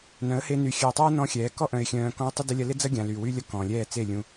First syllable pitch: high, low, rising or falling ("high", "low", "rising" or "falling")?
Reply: rising